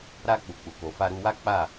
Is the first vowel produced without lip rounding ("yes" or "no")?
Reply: yes